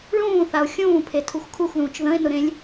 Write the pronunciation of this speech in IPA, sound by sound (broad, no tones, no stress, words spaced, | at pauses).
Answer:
ɭũːθao̯ xʲũːpʰetʰux kʰuxðũːt͡ʃ ðə̃e̯nʊɾẽlʲ